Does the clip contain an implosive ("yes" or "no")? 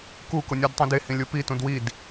no